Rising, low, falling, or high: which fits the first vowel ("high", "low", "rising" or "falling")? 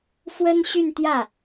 high